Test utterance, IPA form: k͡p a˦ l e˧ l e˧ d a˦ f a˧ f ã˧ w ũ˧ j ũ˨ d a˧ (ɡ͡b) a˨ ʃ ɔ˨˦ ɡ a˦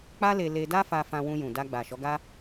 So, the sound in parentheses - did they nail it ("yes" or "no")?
yes